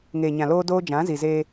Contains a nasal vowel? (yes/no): yes